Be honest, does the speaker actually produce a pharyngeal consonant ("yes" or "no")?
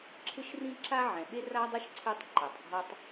yes